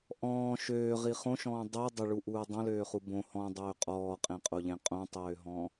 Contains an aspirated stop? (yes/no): no